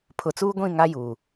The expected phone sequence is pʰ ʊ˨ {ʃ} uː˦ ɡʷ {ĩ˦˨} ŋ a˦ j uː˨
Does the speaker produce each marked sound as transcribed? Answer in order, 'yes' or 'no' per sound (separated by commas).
no, yes